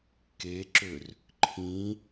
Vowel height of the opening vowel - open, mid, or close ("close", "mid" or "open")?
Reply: mid